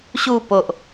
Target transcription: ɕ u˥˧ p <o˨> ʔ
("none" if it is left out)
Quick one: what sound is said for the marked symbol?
o˨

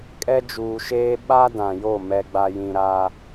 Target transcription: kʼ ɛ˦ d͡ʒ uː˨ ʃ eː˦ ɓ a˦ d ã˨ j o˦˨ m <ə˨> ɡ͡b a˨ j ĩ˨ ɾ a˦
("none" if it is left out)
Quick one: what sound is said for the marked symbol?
ɛ˨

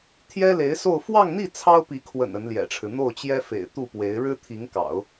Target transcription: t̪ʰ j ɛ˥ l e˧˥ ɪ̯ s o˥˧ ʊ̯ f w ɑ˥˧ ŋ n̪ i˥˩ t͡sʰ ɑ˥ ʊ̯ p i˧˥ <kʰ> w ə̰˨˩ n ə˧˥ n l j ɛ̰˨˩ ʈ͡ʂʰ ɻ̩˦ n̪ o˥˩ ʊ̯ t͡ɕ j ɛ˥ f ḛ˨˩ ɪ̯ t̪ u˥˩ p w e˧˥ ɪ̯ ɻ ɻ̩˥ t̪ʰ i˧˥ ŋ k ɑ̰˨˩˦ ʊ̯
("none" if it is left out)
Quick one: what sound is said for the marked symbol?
kʰ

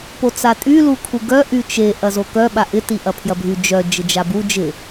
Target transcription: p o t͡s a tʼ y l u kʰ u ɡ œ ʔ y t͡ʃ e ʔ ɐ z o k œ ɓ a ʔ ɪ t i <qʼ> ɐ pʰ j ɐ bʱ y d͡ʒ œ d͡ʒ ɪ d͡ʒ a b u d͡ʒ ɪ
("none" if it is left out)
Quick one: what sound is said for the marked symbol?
ʔ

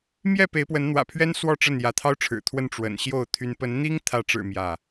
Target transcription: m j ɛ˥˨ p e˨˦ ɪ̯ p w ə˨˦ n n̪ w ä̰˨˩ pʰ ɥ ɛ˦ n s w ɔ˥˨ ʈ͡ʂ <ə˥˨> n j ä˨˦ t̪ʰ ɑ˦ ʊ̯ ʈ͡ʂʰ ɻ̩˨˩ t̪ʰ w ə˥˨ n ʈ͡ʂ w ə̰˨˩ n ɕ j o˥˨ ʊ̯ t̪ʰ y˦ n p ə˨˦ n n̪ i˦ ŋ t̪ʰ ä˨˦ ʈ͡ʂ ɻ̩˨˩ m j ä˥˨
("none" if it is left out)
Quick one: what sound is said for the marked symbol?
ə˥˨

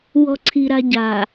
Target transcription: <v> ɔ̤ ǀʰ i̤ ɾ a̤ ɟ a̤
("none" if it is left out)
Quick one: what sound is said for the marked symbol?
w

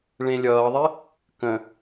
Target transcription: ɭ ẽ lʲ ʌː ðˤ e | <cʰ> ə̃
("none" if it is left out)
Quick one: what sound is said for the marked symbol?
k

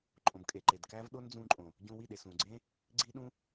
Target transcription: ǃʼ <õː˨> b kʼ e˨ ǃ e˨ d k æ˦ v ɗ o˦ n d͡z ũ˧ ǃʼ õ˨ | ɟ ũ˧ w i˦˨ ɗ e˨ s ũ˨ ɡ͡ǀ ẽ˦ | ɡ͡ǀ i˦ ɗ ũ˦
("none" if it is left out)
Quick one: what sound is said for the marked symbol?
õ˨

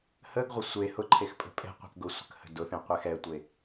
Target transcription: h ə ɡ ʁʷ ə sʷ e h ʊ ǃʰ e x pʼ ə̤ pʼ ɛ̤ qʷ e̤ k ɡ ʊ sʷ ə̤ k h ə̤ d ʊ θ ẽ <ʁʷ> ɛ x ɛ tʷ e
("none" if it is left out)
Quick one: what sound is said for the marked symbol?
qʷ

